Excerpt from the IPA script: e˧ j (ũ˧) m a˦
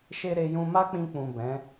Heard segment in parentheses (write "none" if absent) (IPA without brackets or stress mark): ũ˧